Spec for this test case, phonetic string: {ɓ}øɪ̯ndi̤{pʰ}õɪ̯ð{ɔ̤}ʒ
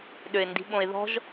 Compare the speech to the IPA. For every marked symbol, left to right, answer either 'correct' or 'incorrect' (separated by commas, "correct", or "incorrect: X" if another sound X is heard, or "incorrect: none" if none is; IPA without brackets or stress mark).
incorrect: ɗ, incorrect: ɓ, correct